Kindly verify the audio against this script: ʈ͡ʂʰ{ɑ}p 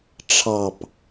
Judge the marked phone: correct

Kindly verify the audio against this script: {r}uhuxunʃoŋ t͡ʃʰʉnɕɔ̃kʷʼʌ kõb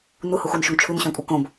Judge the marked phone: incorrect: n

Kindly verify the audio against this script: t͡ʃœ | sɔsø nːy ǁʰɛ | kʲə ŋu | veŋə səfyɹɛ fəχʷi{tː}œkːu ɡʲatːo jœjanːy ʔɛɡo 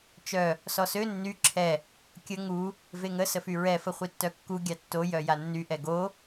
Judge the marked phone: correct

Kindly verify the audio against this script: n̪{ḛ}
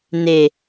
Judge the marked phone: incorrect: e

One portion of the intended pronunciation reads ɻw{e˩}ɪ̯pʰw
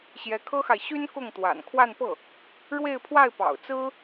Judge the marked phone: incorrect: e˥˧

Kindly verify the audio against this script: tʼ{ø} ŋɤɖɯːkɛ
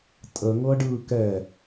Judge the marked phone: incorrect: ə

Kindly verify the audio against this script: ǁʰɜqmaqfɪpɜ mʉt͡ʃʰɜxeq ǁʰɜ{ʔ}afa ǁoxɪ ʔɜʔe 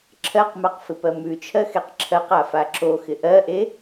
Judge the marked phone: incorrect: q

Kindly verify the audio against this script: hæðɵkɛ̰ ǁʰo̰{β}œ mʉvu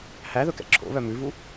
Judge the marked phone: correct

